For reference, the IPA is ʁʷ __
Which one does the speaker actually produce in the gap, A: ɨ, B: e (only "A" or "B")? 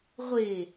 B